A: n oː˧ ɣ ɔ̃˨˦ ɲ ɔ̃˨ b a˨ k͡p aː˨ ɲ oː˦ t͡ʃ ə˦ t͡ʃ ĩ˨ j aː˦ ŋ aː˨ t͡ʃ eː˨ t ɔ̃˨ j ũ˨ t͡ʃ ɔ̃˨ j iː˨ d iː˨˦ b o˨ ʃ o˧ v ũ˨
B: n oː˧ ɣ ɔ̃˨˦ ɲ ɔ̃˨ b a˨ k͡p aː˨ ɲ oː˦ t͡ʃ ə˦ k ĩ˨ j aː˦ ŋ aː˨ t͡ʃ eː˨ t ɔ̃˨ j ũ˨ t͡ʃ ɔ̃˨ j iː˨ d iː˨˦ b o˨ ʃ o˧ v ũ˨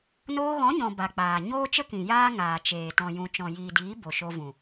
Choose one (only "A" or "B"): B